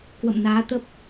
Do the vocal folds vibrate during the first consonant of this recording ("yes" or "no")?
no